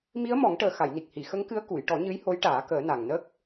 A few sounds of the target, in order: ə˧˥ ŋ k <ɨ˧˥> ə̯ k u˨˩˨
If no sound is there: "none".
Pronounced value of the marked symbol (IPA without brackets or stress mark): ɨ˧˥